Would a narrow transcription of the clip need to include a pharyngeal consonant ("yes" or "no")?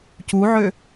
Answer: yes